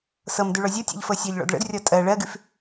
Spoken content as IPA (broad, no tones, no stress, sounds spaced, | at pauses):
s ɤ m d ʉ ɭ ɔ zʲ ɔ tʲ ɔ̰ ʎ f ɤ sʲ ɔ ʎ ɭ ɔ̰ d ɭ ə̰ d rʲ ɔ tʼ ɜ ɭ ɜ ɡ ʉ f